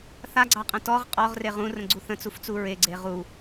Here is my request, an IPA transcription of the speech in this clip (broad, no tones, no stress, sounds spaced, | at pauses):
θ a ɡ͡ǀ ɑ qʼ ə̃ t ɔ ʁ qʼ ɔ ʁ r e ʁ ũ r ə̃ ɡ͡ǀ u θ ə̃ t͡s u f t͡s u ɹ e ɡ͡ǀ e ʁ u